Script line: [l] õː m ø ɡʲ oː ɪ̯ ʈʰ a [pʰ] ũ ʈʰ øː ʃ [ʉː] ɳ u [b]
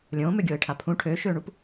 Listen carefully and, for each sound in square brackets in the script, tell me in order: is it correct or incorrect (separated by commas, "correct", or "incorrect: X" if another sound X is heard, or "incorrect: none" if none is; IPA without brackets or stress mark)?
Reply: incorrect: lʲ, correct, incorrect: øː, incorrect: p